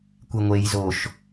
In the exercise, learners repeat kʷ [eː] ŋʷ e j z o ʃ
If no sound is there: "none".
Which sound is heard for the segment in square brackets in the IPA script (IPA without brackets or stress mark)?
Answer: e